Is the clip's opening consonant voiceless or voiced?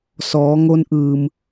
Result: voiceless